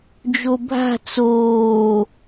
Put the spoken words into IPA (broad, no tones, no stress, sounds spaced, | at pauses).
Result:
d͡ʒ o bʱ a̤ t͡s oː